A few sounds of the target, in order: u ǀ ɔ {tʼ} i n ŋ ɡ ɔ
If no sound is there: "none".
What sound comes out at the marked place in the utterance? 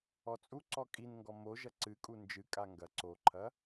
kʼ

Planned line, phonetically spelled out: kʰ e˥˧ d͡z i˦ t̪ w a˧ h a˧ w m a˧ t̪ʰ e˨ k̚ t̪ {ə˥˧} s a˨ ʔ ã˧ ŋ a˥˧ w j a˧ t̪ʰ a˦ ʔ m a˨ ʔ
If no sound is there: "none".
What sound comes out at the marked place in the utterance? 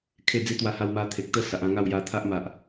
ə˥˧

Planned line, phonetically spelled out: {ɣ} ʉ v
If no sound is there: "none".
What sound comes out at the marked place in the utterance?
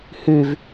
h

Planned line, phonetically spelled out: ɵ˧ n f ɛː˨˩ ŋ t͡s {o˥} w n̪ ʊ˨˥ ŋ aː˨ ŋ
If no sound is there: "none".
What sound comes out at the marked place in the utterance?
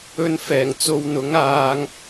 o˨˧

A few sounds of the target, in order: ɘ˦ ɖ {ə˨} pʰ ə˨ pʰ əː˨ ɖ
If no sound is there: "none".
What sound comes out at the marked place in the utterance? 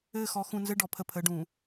ɔ˨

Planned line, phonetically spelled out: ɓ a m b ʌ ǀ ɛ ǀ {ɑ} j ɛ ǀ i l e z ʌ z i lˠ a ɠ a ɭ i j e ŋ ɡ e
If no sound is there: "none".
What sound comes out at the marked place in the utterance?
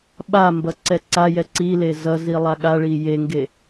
a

